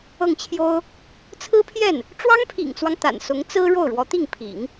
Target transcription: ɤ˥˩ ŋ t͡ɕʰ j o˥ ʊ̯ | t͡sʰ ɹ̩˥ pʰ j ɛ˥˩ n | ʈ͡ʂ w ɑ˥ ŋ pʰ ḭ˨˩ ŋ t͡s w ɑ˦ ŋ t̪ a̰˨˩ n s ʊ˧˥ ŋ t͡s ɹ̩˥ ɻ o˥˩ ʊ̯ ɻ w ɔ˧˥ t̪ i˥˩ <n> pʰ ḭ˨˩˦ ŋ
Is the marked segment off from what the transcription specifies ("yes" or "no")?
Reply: yes